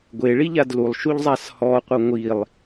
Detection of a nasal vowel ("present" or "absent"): absent